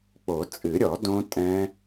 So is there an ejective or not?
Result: yes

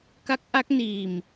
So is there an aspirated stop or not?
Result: no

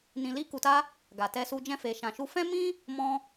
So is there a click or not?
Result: no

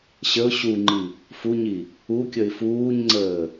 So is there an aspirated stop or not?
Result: no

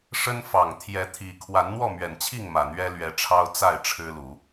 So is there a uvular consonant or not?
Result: no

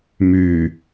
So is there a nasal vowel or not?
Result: no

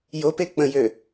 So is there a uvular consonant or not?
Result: no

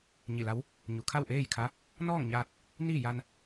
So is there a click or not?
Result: no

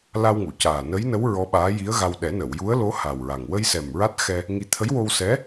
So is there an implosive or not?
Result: yes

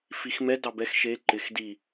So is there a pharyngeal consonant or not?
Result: no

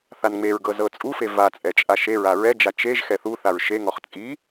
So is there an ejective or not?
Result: yes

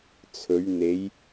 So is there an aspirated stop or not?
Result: yes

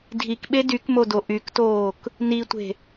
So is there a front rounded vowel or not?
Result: yes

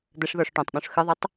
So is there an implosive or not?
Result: yes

